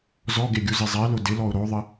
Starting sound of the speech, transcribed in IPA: z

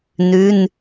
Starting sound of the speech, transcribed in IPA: n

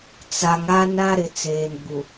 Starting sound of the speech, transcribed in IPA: t͡s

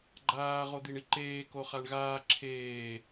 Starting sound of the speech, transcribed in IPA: ɡ͡ǃ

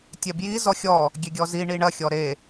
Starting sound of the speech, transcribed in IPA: tʲ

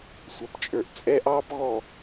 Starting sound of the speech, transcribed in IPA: sʷ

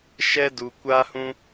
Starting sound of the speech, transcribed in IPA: ʃ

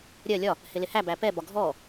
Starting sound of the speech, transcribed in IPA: ɾʲ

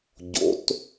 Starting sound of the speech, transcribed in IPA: ɟ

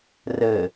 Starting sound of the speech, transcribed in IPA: r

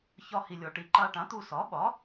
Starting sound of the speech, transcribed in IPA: ç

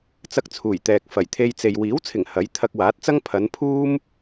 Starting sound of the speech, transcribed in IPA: t͡s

